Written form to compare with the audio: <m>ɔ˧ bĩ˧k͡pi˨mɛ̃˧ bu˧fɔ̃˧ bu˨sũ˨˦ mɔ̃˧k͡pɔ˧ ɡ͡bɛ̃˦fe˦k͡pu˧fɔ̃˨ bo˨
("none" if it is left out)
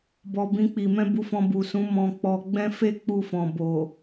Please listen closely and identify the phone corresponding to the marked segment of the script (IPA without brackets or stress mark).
b